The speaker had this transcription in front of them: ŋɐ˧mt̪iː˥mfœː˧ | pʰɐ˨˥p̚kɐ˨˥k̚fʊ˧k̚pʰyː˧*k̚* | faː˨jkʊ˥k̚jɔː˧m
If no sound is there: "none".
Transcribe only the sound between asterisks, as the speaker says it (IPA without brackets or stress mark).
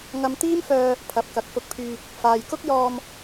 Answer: k̚